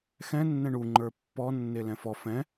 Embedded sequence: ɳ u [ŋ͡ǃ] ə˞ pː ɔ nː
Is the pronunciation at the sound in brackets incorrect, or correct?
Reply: correct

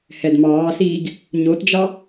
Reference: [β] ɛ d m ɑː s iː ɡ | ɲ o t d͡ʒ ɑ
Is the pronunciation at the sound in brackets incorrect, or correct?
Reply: incorrect: h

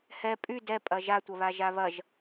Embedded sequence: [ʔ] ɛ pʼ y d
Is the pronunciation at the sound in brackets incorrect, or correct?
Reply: incorrect: h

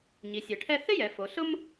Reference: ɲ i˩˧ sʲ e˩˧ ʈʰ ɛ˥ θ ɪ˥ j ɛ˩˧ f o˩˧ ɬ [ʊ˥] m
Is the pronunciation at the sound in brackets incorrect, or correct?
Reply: correct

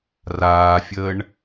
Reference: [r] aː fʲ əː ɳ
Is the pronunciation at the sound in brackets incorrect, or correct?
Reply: correct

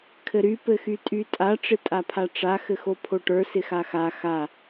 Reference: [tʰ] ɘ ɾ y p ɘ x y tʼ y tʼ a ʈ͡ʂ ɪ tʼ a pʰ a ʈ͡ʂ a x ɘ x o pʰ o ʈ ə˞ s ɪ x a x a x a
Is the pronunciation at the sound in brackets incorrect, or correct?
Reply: incorrect: kʰ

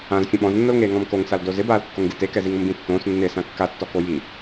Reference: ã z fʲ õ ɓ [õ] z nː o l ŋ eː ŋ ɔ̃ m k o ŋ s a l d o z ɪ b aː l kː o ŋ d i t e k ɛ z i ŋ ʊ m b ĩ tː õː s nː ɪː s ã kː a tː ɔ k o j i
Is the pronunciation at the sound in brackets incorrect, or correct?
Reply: incorrect: ɔ̃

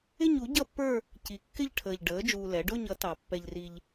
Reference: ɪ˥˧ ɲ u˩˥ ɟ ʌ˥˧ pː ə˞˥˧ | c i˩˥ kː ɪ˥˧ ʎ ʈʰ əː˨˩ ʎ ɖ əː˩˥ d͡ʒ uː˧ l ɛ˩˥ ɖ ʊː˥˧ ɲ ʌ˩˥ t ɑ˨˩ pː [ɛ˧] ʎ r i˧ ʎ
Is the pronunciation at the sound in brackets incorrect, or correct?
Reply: correct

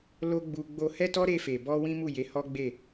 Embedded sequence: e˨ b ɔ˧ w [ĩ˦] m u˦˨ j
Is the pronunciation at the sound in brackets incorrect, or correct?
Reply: correct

